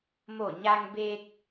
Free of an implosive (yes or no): yes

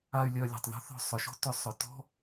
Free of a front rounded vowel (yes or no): no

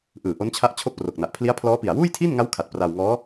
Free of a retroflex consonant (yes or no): yes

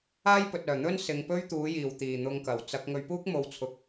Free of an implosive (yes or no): yes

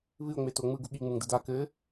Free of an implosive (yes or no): no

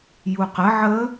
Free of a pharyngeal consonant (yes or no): no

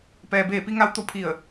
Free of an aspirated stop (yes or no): no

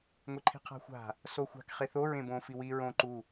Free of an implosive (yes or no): yes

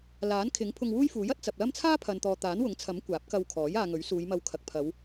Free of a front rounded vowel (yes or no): yes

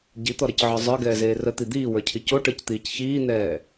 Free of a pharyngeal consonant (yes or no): no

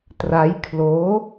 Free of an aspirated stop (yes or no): no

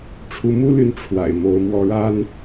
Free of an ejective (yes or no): yes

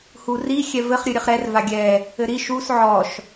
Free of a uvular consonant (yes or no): no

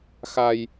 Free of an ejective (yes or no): yes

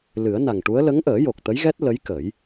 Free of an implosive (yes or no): yes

